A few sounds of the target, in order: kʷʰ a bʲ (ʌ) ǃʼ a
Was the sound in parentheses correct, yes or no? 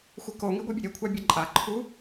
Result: yes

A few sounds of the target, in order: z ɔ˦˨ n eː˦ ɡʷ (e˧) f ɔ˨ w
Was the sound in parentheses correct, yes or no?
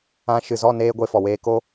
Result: yes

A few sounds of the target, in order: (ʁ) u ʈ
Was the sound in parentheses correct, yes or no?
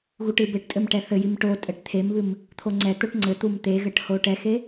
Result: no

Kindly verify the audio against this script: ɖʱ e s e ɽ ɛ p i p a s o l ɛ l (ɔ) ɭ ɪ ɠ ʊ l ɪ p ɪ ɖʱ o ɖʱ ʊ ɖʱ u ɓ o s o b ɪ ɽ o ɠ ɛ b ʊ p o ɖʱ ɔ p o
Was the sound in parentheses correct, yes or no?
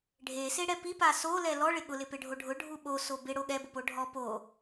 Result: yes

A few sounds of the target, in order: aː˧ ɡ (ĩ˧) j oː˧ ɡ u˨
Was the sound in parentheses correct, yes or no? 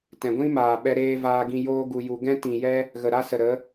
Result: yes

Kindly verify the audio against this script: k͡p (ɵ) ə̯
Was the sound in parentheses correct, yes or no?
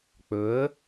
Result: yes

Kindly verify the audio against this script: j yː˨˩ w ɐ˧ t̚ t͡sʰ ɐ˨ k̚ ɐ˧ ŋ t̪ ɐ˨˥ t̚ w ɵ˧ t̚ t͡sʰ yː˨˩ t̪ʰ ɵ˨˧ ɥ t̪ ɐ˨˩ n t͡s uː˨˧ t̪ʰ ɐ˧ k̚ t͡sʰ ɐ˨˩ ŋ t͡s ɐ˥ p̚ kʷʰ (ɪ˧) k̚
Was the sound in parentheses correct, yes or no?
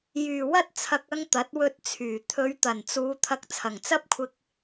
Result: yes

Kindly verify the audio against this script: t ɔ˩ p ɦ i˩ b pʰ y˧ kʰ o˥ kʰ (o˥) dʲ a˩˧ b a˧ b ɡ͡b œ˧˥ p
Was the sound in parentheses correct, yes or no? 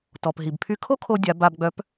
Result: no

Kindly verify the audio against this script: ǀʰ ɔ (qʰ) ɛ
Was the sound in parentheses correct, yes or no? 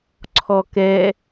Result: no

